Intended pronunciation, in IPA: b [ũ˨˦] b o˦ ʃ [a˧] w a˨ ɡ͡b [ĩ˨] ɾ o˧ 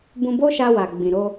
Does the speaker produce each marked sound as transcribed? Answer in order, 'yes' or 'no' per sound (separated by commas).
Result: no, yes, yes